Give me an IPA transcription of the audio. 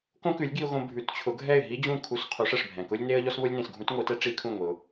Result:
k õ˥ k ʉ˩˥ lʲ ɡ i˧ ʊ̯ ɣ õ˧ bʱ ʉ˩˥ t t͡ɕʰ ʊ˩˥ ɡʱ ɛ˥˩ ɪ̯ ɦ i˥ d͡ʑ ũ˥˩ kʰ u˧ s qʰ u˩˥ ʂ ɛ˩ ʂ bʱ ɛ̃˩ k ʊ˥ lʲ n e˥ ə̯ ʎ ɔ˥ s β ʊ˥ lʲ n ẽ˩ s ɡʱ ũ˥ t ŋʷ i˩˥ t ɛ˥ ʈ͡ʂ i˥ kʰ ũ˥˩ ŋʷ i˩ ʊ̯

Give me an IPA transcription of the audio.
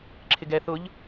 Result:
ǁʰ ɪ ɡ ɛ θ ʊ ʎ

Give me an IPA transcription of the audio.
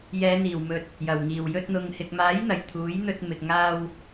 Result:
j ɛː˨˧ n̪ iː˨˩ w m ɵ˨ t̚ | j ɐ˨˩ w ŋ iː˨˩ w j ɵ˧ t̚ n̪ ʊ˨ ŋ h ɪ˨ k̚ m aː˨˥ j n̪ ɐ˨˩ j t̪ʰ uː˨˥ j n̪ ɵ˧ t̚ m ɪ˨ k̚ ŋ aː˧ w

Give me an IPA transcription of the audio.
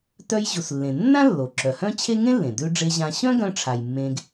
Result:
t œ˧ j ʑ u˩ s lː ẽ˩ nː ã˥ lː o˩ ǁ œ˩ h œ̃˥ t͡ɕʰ e˥ ŋ ẽ˥ lː ẽ˩ d ʉ˧ ɖ͡ʐ e˧ ʑ ã˧ ɕ œ̃˥ ɡ œ̃˧ ʈ͡ʂʰ a˩ j mː ẽ˧ ɡ

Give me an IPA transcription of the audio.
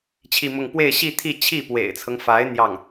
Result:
t͡ɕʰ i˥˧ m ʊ˥˧ ŋ p w e˥˧ ɪ̯ ɕ i˥˧ t̪ʰ i˥˧ t͡ɕʰ i˥˩ p w ḛ˨˩ ɪ̯ t͡sʰ ɤ˦ ŋ f a˧˥ ɪ̯ n̪ j ɑ˥˩ ŋ

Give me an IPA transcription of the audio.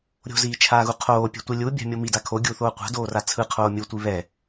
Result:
ɾʲ o̤ z iː t͡ʃʰ aː ɣ u qʰ oː pʲ a̤ tʷ i lʲ u bʲ a̤ mʲ o m i d a kʰ o ɡʲ uː θ oː qʷ a̤ d oː r a t͡sʰ ɯ qʰ oː mʲ u tʷ i β ɛ

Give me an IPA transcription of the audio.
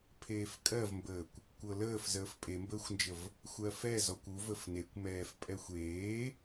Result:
pʰ eː f kʼ ɜ v m b əː kʷ | kʷ ɤ l əː f z əː f pʼ e m b əː xʷ n d͡ʒ ə v | xʷ ɜ f ɛ z ɔ kʷ u v ə f n e kʷ m ɛː f pʼ ɛ xʷ eː

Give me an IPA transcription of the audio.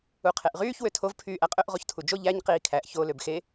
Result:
u qʰ e ʔ ʁ yː ç w ø tʰ o v pʰ yː ʔ æ qʼ ø ʔ ʁ o ç tʰ u d͡ʒ o ʎ æ ɲ q iː kʰ æ ʔ ç o l ø b x e

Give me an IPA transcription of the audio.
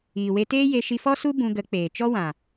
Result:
iː˨ w e˧ t eː˦ j e˧ ʃ i˧ f ɔ˦ s u˦ b ũ˧ ɡ ə˨˦ k͡p eː˨ t͡ʃ ɔ˦ w ã˨

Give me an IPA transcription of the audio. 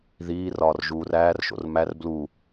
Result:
ð iː r ɒː r ʒ uː r æː r ʃ o̰ r m æ r b l u

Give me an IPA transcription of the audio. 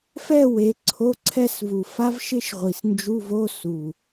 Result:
f ɛ˥˧ w e˨˦ ǀʰ o˧˥˧ ǀʰ ɛ˥˧ s v u˨˩ f a˥ v ʃ ɪ˥ ʃ ʁʷ i˨˩ s n d͡ʒ u˧˥˧ v o˧˥˧ s u˨˩

